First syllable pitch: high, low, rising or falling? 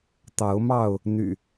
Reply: rising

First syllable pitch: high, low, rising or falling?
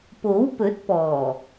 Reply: rising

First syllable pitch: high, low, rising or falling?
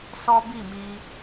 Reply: high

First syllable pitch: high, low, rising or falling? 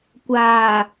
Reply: low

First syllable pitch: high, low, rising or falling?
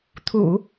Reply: low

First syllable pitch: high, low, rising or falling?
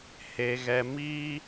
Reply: high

